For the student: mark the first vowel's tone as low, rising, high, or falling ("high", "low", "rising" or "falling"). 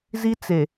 high